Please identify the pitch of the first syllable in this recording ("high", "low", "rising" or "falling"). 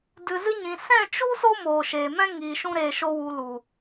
low